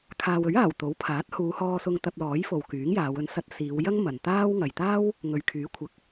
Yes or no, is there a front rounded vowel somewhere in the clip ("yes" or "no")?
yes